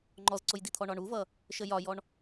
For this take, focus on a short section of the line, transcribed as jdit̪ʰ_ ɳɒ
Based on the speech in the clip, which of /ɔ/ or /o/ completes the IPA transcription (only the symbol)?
ɔ